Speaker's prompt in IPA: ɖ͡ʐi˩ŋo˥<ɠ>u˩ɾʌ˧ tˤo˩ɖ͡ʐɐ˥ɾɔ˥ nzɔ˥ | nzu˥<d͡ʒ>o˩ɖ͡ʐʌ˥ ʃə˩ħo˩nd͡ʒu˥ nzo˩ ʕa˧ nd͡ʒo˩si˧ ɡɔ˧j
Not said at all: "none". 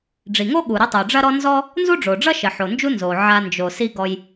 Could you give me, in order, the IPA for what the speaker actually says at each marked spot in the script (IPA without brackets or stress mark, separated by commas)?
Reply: ɠ, ɖ͡ʐ